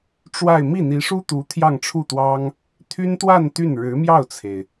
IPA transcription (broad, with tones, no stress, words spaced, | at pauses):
ʈ͡ʂwa˥˧ɪ̯ mi˥˩n̪i˧˥ʂu˥t̪u˧˥ t̪ʰjɑ˥˧ŋʈ͡ʂʰu˥˩t̪wɑ˥ŋ | t̪ʰy˥nt̪wa˥˧n t̪y˥˩n ɻɻ̩˧˥mjɑ˥˩ʊ̯t͡sʰe˩ɪ̯